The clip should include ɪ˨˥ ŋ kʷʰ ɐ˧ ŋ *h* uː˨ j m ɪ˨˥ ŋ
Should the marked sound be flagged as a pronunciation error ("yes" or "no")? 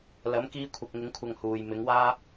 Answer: no